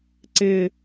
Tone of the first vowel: falling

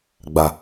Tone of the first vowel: low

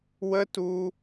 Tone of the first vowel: high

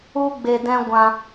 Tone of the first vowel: high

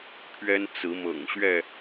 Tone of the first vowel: high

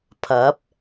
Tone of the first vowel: rising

